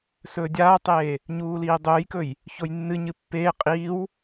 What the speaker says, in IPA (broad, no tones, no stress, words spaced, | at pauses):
sɵːdʲaːtˤeː | ɲuːliːdˤɵːjkɵj | çojnːɨɲɨ pːeː qʼiːw